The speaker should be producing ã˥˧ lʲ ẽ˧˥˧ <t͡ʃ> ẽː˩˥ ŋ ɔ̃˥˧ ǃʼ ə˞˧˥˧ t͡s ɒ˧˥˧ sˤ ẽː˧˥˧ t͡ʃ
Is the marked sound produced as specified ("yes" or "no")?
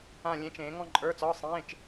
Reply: yes